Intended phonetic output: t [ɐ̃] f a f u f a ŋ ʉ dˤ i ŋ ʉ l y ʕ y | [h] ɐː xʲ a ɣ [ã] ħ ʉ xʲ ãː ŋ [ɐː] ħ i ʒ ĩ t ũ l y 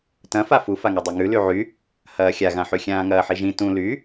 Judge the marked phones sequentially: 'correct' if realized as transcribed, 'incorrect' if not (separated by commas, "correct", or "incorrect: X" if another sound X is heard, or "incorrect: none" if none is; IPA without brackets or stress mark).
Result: correct, correct, correct, correct